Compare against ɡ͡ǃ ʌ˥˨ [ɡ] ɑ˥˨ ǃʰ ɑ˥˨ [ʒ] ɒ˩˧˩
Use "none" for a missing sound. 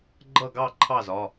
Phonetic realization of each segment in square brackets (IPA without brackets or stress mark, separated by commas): ɡ, z